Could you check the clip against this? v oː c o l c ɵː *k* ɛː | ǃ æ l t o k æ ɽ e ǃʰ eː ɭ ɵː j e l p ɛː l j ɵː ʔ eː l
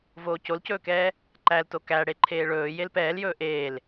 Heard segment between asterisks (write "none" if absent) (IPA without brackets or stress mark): k